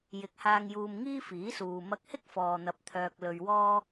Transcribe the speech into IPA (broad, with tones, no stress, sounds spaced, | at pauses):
j ɪ˨˥ k̚ h aː˧ ŋ j uː˧ m ŋ iː˥ f iː˨˥ s uː˨ m ɐ˧ k̚ h ɪ˥ k̚ f ɔː˨ n̪ ɐ˨˥ p̚ t̪ʰ œː˧ k̚ l ɵ˧ ɥ w ɔː˥